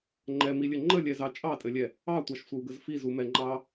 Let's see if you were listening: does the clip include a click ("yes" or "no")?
yes